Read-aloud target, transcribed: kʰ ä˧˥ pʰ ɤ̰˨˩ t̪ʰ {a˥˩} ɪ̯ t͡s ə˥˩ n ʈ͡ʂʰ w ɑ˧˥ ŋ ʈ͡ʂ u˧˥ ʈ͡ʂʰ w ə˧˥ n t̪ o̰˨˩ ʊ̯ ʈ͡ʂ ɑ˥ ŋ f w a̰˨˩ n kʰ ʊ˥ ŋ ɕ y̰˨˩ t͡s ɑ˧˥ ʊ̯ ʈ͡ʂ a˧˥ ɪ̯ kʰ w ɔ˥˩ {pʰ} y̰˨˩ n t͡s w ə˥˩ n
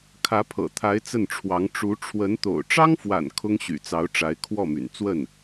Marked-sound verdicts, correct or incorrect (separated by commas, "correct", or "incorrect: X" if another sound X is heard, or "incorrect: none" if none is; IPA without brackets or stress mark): incorrect: a˧˥, incorrect: m